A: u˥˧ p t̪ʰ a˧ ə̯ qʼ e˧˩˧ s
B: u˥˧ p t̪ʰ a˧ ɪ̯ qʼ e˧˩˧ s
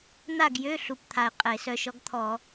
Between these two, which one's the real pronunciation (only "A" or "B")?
B